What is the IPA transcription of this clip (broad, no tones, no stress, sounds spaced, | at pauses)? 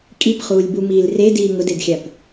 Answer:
kʼ i p χ uː lʲ b u m iː l r e d iː ŋ ʊ d e d xʲ a p